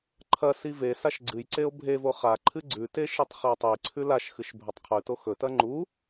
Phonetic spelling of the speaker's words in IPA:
ǃʰ ɐ s i v e s a ʃ ɡ͡ǀ ɨ j ǀ e o̯ bʱ e v o χ a ǃʰ ɨ ɡ͡ǀ ʉ t e ʃ i tˤ χ i o̯ tˤ i ǀʰ ʉ l a ʃ x ɨ ʃ bʱ ɵ tˤ qʰ ʉ t o x ɵ t ɐ ŋ͡ǃ u

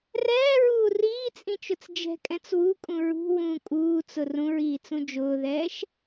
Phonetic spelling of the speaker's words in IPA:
r ɛː ɹ uː r iː t͡sʼ ĩ t͡ʃ ʊ t͡s d͡ʒ ɛ̤ kʼ ɛ̃ t͡s w u kʼ ũ ɹ ṳ w ũ kʼ uː t͡s ʊ r ũ ɹ iː t͡s ũ d͡ʒ ʊː ð ɛː ʃ

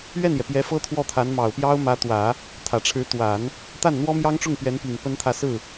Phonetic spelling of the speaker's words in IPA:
ɥ ɛ˥˩ n j ɛ˩ p j ɛ˧˥ f ɤ˥ t̪ʰ w ɔ˥˩ t̪ʰ a˧˥ n m ɑ˨˩ ʊ̯ p j ɑ˥ ʊ̯ m ä˧˥ t̪ w ä˨˩˦ | t̪ʰ ä˨˩ ʈ͡ʂʰ ɻ̩˧˥ t̪ w a˨˩˦ n | t̪ a˥˩ n n̪ w ɔ˥ m j ɑ˥ ŋ ʈ͡ʂ ʊ˥˩ ŋ p ɥ ɛ˧˥ n p i˨˩ ŋ p ə˥ n t̪ʰ ä˥˧ s ɹ̩˥˩

